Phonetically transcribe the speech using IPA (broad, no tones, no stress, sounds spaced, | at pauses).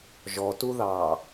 ʒ ɔ t u ð ɑː